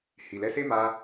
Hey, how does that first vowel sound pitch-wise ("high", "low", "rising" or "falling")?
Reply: low